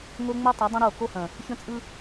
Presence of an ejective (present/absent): present